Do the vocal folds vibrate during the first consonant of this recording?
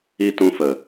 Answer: no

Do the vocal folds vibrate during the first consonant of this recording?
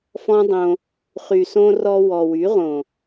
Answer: no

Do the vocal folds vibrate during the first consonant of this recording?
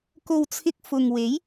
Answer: no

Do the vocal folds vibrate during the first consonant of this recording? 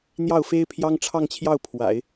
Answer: yes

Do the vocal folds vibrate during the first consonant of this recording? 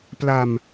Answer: no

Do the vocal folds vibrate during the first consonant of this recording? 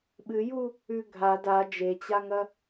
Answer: yes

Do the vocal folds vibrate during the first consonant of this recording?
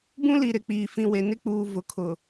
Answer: yes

